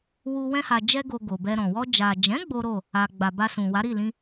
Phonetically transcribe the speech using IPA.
w u˧ w ɛ̃˧ h a˨ d͡ʒ ɛ˧ ɡ o˨ ɡ o˨ b ɛ˧ ɾ ɔ̃˨ w ɔ˧ d͡ʒ a˨ d͡ʒ ɛ̃˨˦ ɡ͡b o˦ ɾ o˦˨ | a˨ ɡ͡b a˨ b a˧ s ũ˨ w a˨˦ ɾ i˦˨ l ĩ˧

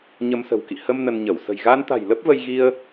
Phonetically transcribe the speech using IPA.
ɲ ə˧ m s ə̤˨˩ w k ḭ˧˨ h ə˧ m n ə˧ n ɲ ə˧˩ w s ə̤˨˩ j ɣ aː˧ n t̪ a̤˨˩ j l ə˦˥ p̚ v ə˧ j ɣ i˧ ə̯

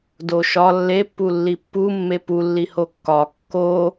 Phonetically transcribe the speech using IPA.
d o ʃ ɒ lː e pː u lː i pː u mː e p u lː i h o kː ɒ kː o

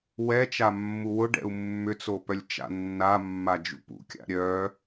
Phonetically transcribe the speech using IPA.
w ɛ t͡ʃ a mː u w ʊ ɖ ɛ̰ u̯ mː ʏ t͡s o p œ lʲ t͡ʃ a̰ nː a mː a d͡ʒ ṵ p ṵ kʲ a̰ ɾʲ œ

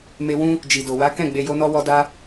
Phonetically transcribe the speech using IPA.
m e˧ w ũ˧ | d͡ʒ i˨ d o˨ w a˨˦ k ɛ̃˦˨ ɡ͡b e˧ j o˦ n ɔ˦ w ɔ˦ d a˦

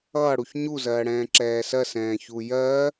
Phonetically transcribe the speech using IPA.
ʌː ɽ u ç ɲ u z ɜː ɽ ɛ̃ː ǁ ɛː s ɜ s ɛ̃ː ç u j ɜː

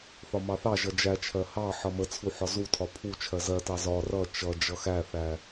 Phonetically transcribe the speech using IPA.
θ ɒ m ɑ θ ɑ ʒ ʌ d͡ʒ æ t͡ʃʰ ɜ h ɑ ħ ʌ m ə t͡sʰ u ħ ɒ z u tʰ ɒ pʰ u t͡ʃʰ ɜ z ɜ t ɑ z ɒ r ʌ t͡ʃ ʌ d͡ʒ ʌ x æ θ æ

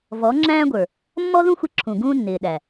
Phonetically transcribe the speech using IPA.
v ɔ˨˦ ŋ͡ǁ æ̃ː˦ ɡʷ ə˞˨ | mː ɔ˦ ð ũ˦ xʷ ɪ˧ ǁʰ ũ˨ ɡ ũː˦ nː ɪː˨ ɗ æ˨

